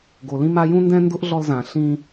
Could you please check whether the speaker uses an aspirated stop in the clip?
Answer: no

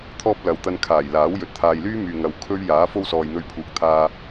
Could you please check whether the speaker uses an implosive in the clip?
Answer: no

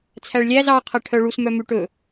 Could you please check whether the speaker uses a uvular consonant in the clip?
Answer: yes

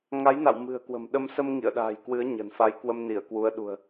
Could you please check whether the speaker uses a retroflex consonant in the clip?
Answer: no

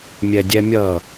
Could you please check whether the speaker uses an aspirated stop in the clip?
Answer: no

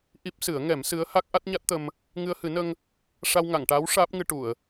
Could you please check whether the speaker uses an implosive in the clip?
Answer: no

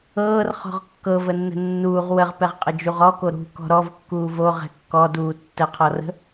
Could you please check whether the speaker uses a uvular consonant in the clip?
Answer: yes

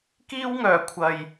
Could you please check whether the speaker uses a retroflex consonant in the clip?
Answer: no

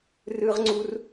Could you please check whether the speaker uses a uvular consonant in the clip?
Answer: yes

